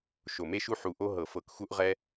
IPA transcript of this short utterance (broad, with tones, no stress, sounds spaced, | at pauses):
ʃ o˧˩ m e˥ ʃ u˥ ħ u˧˩ ʔ o˥ ɦ ɤ˧˩˧ f ɤ˧˩˧ k x u˥ ʔ ʁ ɛ˥